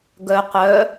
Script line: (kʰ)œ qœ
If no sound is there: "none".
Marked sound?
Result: ɡ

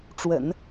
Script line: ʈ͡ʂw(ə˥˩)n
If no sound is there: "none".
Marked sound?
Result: ə̰˨˩˦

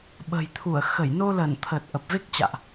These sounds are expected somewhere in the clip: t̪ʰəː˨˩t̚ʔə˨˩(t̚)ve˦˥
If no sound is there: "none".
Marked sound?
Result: p̚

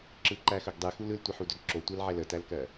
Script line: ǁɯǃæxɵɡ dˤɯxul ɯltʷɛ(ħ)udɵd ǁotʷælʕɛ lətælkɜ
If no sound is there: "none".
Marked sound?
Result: ħ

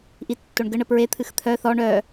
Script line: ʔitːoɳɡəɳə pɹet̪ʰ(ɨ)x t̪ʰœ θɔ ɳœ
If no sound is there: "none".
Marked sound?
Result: ɨ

